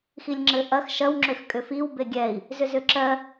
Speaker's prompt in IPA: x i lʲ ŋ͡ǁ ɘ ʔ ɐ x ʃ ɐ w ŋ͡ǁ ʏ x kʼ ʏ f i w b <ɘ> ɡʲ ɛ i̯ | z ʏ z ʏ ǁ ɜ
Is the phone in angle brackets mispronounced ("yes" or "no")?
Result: yes